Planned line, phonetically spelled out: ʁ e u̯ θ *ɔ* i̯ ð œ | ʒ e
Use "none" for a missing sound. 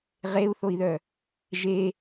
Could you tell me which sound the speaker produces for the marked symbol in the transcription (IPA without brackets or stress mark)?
o